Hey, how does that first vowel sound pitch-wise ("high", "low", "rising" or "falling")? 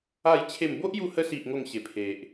falling